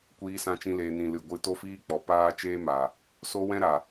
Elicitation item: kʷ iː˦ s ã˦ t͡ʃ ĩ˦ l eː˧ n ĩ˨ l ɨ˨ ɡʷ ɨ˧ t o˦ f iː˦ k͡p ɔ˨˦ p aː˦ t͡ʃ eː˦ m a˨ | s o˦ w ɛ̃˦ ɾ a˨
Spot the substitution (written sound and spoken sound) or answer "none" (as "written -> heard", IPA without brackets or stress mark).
none